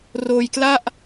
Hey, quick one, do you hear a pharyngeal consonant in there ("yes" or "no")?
no